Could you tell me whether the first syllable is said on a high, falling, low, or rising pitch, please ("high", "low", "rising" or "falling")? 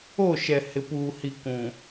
falling